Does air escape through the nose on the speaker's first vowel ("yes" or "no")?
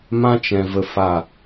yes